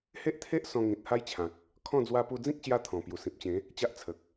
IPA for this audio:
h e˦ ʔ t̪ʰ e˦ ʔ s ɔ̃˧ ŋ ĩ˨ t̚ h a˦ j t͡ɕʰ ã˨ k̚ | kʰ ɔ̃˥˧ d͡z w a˧ p u˧ d͡z ĩ˦ k̚ ɕ j a˦ t̪ʰ ɔ̃˨˩ p j u˨˩ s ĩ˨ p̚ t͡ɕ ẽ˨˦ | t͡ɕ a˦ ʔ t͡sʰ ə˨ k̚

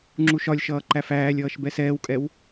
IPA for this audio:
ŋ͡ǁ u ʃ ɒ lʲ ʃ ʌː ǃ æ f æː lʲ ʌː ʃ b ɛ s ɛː w kʼ ɛ w

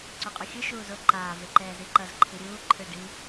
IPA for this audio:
ǀ u qʼ u xʲ ɯ ʃ uː z o ǃ aː v e ǃ ɛː z i ǃ ʌ z ǃʰ i ɾʲ uː ǃʰ ɯ ɖ i

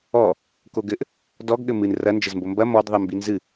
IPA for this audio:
ɔ | k o ɡ ɘ ʔ | d ɔ ɡ ɠ ɘ m ɨ n r ɐ n d͡ʒ ɘ z m b o m b ɐ m ɔ d ðˤ ɨ m b i n z ɨ

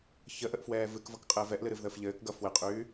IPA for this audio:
ç ə ʔ ə ʔ f w ɛː v ɨ k v ʌ k qʼ ɘː v ɛ ʔ l ɨ ɾ ɨ v ð əː f ʎ ɘː k ɡ ʌ f w ɘ qʼ yː

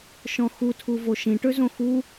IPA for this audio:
ʃ ɔ̃ x u tʰ u v o ʃ ĩ ʈ ø z õ x u

